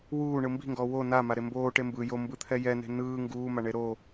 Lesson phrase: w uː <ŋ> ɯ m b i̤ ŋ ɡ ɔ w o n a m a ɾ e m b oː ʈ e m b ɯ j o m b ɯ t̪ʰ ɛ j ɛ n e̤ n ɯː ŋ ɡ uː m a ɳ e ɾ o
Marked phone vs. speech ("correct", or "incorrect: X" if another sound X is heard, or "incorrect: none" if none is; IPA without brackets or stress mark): incorrect: ɳ